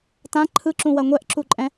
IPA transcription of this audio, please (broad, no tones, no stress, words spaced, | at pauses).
tã ǃʰɯǁũwɐ ŋʷɛʔǁuǃʼɛ̃